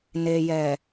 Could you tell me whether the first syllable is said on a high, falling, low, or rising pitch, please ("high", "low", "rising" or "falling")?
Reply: low